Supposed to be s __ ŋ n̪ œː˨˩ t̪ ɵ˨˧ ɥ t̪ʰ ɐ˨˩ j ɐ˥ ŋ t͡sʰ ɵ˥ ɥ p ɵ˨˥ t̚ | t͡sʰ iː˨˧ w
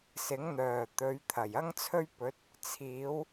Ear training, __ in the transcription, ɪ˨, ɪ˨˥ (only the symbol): ɪ˨˥